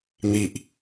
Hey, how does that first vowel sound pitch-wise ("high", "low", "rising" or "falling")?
low